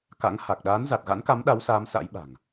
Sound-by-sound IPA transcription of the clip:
ka̰˧˥ŋha˨˩k̚ ɗaː˨˦nza˨˩t̚ɣa̰˧˥nka˨˦m ɗa˨˦wsaː˨˦m sa̰˧˥jɓa̤˨˩ŋ

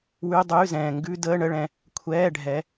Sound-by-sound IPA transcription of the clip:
wʉ˧˥˧ dˤʉː˧˥˧zɛ̃ː˨ ŋɡʉ˧˥˧ dəː˧˥˧ɳə˧˥˧ɭɛ̃˨ | kʷʰɛː˧˥˧ɖʱɛ˨˦

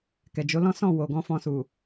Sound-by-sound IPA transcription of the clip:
kɛ˨d͡ʒo˨˦lɔ̃˦sɔ̃˦˨ wo˨ɡɔ̃˧ fɔ̃˧su˨

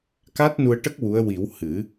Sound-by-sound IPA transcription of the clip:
ka˦˥t̚nu˧ə̯ʈə˦˥k̚ wu˧˥ə̯ wi˨˩˦w hɨ˨˩˦

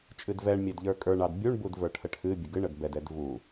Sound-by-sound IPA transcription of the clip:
t͡ʃʼɨdvɛɳmʲedʎə˞ kʼə˞ɳɑd bʲuɳbud və˞ʈʰəʈʰɨ bʲəɡɨɳəd bɛdɛd vu

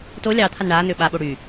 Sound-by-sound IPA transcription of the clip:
to lʲɑ t̪ʰanɳaːn̪ʏː ɓaɓo ɽy

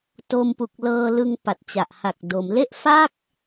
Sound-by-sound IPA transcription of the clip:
to˧mpu˨˩k̚lɤː˧ lɯ˧ŋ pa˨˩t̚t͡ɕa˨˩ʔha˨˩k̚ do˩˦mle˥˩ʔ fa˥˩k̚

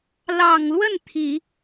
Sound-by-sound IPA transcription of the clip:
lɑ˨˩ŋlwə˥˩n t̪ʰi˨˩˦

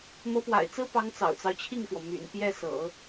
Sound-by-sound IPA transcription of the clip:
mɤ˧˥pwa̰˨˩ɪ̯t͡sɹ̩˥pɑ˧˥ŋ t͡sɑ̰˨˩ʊ̯t͡sɑ˦ʊ̯t͡ɕʰi˥˩ŋfwɔ˩ my̰˨˩npjɛ˥˩sɤ̰˨˩˦

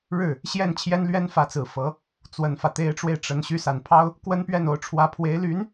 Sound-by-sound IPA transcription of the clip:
ɻɻ̩˥˩ | ɕjɛ˥˩n t͡ɕʰjɛ˥n lɥɛ˥nfä˧˥t͡sɹ̩˨˩ fɤ˧˥ | t͡swə˨˩nfä˦t̪e˧˥ɪ̯ʈ͡ʂwe˧ɪ̯ ʈ͡ʂə˧˥n ɕy˧˥sa˨˩npʰɑ˥ʊ̯ | kwə˥npɥɛ˥˩no˧˥ʊ̯ ʈ͡ʂʰwä˧˥pʰwe˧˥ɪ̯ly˧˥n

